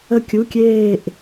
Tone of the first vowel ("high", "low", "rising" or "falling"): falling